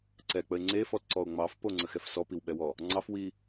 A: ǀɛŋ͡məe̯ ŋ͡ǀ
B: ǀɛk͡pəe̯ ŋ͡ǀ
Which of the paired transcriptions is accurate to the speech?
B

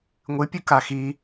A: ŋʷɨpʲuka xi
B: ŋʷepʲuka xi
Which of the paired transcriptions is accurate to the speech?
A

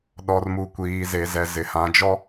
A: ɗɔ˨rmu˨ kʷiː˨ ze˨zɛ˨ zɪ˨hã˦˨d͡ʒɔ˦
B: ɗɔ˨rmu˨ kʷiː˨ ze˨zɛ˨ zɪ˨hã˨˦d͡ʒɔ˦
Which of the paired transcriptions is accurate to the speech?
B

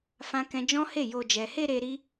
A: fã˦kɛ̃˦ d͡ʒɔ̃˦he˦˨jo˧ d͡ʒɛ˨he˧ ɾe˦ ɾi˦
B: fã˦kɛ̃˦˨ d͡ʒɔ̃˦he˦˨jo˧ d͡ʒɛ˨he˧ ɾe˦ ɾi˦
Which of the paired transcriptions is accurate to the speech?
A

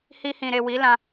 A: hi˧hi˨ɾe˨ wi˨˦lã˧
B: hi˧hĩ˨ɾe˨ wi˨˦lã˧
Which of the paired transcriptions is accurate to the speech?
B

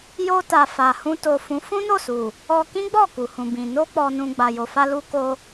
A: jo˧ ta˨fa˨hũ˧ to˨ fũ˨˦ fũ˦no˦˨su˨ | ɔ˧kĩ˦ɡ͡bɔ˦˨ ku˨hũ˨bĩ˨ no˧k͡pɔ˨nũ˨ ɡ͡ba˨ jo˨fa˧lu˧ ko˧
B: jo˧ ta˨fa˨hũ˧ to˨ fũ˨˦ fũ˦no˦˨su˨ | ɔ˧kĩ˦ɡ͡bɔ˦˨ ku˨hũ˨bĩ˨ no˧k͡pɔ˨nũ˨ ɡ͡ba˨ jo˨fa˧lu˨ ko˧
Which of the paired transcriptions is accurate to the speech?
A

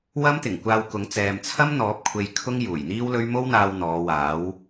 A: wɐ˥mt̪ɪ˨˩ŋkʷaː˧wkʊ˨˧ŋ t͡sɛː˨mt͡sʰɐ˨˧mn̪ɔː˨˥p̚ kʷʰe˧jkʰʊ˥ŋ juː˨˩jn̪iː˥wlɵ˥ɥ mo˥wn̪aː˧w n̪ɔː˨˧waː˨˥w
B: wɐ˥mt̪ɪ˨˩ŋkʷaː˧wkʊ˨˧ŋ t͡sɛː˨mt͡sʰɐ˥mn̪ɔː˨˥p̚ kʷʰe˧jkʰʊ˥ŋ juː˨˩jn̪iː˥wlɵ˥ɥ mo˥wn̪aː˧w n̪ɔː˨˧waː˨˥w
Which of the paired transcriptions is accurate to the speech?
B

